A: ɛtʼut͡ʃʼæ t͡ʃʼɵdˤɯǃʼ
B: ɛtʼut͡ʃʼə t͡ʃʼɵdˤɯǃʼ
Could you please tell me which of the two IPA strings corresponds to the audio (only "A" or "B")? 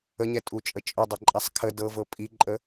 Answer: B